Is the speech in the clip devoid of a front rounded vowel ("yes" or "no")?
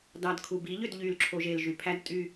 no